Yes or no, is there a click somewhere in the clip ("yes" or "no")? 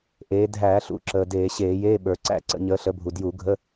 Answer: yes